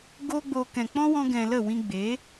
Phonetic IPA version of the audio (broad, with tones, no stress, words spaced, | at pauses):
ɡo˦ɡ͡bo˧ kɛ̃˨k͡pɔ̃˦wɔ̃˧ ɡɛ̃˨ lə˦˨wĩ˧ɡ͡be˨˦